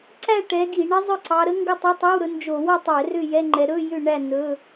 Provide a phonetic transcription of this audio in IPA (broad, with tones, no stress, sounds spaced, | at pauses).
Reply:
ǀ æ˥˨ ʈ ɛ˨˦ ɡ i˧˩˧ ɳ ə˦˥ zˤ ɵ˥˨ ǀ ɑ˨˦ ɾ ə˦˥ ŋ ɡ ɵ˥˨ tˤ ʏ˧˥˧ tˤ o˧˥˧ w ɾ ɵ˨˦ n d͡ʒ o˧˩˧ w ɔ˥˨ tˤ ɛ˧˩˧ r ʏ˥˨ j ɛ˧˥˧ ŋ͡ǃ ɛ˨˦ ɾ ɵ˧˥˧ j ʏ˥˨ ɳ æ˥˨ n ɵ˧˥˧